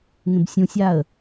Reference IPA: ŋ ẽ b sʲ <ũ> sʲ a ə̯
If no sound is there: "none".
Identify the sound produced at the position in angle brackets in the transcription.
ũ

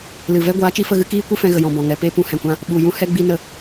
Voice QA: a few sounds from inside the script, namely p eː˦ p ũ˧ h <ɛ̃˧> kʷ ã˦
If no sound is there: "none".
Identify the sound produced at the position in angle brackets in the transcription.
ɛ̃˨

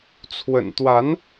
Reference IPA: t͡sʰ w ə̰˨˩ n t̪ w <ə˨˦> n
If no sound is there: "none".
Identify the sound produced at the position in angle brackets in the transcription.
a˨˦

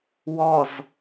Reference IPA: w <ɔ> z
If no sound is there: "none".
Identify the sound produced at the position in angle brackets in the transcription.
ɔ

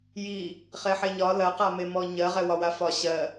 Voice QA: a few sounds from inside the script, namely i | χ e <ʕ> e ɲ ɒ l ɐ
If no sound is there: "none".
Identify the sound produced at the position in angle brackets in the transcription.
ħ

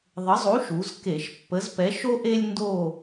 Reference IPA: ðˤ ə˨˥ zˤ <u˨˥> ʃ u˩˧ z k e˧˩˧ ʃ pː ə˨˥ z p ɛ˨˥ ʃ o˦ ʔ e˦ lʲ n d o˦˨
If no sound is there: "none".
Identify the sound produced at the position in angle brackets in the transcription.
u˨˥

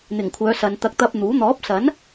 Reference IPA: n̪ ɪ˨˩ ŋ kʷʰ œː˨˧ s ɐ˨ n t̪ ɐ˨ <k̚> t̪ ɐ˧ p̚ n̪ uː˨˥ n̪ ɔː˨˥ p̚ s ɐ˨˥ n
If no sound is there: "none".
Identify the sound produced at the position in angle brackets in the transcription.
k̚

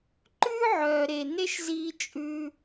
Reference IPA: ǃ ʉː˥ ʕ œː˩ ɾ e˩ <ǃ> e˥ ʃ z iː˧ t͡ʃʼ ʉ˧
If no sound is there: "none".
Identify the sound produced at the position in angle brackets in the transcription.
n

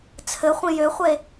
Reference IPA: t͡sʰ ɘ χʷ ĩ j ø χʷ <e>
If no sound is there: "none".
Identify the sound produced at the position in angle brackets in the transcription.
e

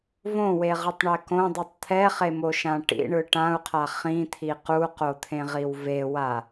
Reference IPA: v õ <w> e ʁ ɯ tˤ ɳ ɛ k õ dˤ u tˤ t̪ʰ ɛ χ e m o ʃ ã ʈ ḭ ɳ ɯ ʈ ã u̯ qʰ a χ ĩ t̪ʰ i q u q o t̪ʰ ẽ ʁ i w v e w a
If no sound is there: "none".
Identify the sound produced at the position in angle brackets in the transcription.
w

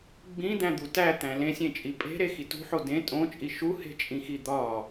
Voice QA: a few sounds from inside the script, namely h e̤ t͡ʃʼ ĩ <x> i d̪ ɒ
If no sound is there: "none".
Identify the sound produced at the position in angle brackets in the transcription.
x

